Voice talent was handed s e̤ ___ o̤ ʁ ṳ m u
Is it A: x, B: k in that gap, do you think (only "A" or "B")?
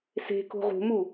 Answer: B